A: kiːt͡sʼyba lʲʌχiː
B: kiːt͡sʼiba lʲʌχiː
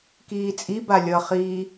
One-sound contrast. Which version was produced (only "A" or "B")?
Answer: B